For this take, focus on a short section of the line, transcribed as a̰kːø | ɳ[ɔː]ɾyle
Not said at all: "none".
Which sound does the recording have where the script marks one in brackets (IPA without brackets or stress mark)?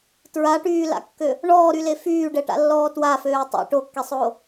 ɔː